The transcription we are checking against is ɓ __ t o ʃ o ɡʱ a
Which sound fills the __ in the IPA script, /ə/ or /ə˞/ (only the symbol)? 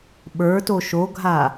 ə˞